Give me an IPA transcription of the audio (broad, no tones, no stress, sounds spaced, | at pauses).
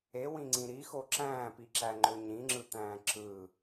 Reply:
e w ĩ ŋ͡ǀ ĩ ɾ i x o ǁ æ̃ː p i ǁ æ ŋ͡ǃ ø ɲ ĩ ŋ͡ǁ ɯ t̪ æ̃ː ǁ ɯ